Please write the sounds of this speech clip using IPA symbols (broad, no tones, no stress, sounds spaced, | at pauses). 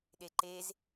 ɗ e ǃ e z